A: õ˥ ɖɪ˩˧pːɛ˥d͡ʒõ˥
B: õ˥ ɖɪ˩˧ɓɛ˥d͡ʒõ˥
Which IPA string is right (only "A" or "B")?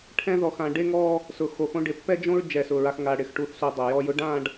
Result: A